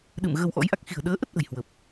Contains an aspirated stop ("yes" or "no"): no